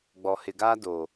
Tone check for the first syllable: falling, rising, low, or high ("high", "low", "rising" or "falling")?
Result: low